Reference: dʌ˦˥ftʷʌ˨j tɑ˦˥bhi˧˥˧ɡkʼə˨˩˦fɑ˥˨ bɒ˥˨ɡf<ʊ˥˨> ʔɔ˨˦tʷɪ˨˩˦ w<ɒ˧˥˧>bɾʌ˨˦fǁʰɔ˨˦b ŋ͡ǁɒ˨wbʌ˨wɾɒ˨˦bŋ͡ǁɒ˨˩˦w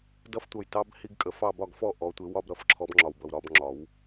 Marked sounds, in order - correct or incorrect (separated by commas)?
incorrect, correct